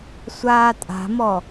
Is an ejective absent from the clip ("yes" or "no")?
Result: no